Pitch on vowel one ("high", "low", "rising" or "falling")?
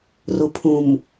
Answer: low